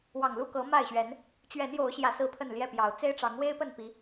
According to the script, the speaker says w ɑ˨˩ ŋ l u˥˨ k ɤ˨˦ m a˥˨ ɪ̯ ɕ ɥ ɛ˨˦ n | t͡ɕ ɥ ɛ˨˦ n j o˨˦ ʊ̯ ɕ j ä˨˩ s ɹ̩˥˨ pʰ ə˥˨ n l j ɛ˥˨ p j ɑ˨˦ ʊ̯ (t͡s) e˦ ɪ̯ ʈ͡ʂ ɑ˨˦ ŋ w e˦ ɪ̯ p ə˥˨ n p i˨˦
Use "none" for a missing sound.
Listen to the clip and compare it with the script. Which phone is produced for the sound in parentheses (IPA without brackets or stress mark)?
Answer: t͡s